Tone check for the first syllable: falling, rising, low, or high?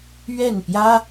falling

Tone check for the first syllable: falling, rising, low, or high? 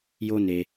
high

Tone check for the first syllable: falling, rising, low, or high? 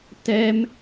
high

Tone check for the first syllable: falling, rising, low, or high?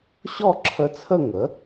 falling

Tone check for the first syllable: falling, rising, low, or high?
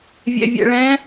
low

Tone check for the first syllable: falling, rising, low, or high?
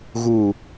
low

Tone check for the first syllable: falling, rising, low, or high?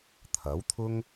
rising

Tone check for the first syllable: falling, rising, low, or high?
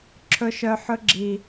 low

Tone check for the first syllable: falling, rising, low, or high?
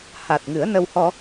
low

